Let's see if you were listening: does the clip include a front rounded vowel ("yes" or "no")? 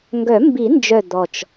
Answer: yes